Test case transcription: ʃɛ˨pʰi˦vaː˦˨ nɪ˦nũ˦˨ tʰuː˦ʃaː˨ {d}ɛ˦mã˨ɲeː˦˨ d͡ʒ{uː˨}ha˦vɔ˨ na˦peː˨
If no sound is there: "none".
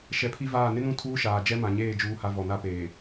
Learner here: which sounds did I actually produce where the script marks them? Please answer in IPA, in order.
d͡ʒ, uː˦

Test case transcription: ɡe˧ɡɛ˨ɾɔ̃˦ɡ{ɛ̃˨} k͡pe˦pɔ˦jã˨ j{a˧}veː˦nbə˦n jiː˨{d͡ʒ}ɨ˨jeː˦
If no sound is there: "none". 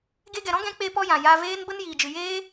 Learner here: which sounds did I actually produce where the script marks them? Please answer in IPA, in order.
ɛ̃˧, a˧, d͡ʒ

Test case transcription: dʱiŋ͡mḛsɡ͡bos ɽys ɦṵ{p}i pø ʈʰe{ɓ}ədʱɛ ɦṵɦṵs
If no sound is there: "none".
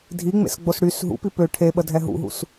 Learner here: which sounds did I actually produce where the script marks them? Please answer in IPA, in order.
p, ɓ

